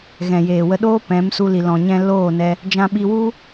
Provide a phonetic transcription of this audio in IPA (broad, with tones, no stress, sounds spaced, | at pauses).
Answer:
ɣ ɛ̃˨ j eː˨ w ə˧ ɗ oː˦ p ɛ̃˨˦ m s u˧ l i˨ l ɔ̃˨ ɲ ɛ̃˧ l oː˦˨ n ɛ˧ | d͡ʒ ã˧ ɓ i˧ w u˦